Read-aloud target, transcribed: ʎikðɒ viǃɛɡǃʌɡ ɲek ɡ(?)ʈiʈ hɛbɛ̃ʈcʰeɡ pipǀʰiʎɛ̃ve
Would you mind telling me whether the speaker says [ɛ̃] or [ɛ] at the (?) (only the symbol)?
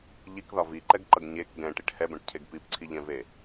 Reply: ɛ̃